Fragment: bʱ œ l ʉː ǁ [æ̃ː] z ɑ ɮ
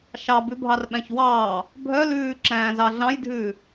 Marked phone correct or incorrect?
correct